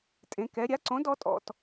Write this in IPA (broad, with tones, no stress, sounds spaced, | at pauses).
tʼ ẽ˩˧ k ɛ˩˧ ɾʲ a˨˥ ǀ õ˨˥ d ɔ˨˥ tʼ ɔ̰˧˩˧ t